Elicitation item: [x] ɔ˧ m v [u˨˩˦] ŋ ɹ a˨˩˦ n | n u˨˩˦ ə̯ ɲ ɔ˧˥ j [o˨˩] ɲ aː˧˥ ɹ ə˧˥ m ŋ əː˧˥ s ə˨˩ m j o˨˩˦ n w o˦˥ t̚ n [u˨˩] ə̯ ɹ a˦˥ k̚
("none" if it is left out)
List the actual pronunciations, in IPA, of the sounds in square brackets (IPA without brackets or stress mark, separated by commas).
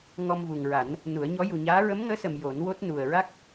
ŋ, u˨˩, u˨˩, u˨˩